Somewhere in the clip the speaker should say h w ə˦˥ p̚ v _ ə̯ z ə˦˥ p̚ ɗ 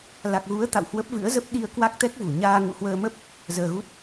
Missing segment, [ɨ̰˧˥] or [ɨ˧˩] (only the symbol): ɨ̰˧˥